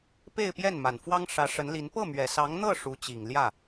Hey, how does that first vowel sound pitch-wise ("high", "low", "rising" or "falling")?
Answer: falling